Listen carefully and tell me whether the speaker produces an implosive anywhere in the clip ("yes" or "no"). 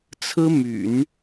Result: no